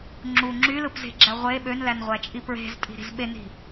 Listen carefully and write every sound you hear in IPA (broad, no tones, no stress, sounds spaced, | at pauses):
ŋ͡ǁ u ŋ͡ǁ y l ɯ p z e̤ ɡ͡ǁ æ ʁʷ e ɓ ø n l æ n ʁʷ æ t͡ʃʼ i p ɹ e̤ z tʼ i̤ ɾ i̤ z ɓ e n i̤